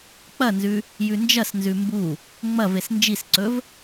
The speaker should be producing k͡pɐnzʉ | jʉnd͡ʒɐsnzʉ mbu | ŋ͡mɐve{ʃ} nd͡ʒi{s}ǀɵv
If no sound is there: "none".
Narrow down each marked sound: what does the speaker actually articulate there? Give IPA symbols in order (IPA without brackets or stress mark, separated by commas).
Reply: s, s